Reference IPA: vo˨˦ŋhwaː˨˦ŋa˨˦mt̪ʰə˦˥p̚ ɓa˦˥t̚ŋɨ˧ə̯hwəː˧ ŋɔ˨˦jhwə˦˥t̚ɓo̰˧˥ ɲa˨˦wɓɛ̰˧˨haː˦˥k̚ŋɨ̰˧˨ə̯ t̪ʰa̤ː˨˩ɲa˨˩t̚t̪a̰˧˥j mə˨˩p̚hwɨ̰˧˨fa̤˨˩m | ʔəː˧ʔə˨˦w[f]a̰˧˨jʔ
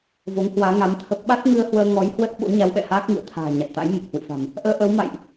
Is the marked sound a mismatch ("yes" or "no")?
yes